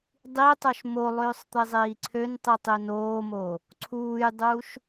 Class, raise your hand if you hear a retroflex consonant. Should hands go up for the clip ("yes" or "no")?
no